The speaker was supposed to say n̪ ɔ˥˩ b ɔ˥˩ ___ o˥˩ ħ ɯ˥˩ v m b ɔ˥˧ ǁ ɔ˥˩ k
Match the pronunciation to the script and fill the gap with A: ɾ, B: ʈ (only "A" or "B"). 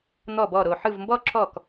A